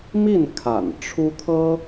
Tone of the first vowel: falling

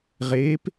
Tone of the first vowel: rising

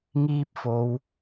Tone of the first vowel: high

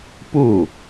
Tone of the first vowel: falling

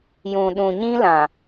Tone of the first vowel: low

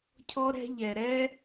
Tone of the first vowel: high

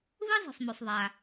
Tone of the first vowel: high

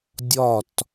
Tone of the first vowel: falling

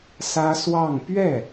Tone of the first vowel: high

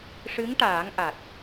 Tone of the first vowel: rising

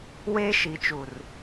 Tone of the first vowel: high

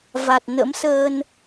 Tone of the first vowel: low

